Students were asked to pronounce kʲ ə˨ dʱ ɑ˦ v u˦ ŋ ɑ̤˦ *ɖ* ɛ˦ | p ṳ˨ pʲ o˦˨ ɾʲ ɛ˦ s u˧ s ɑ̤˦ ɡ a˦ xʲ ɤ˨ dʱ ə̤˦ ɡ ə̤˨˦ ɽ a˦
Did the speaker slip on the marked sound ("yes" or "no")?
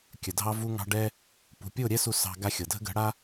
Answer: no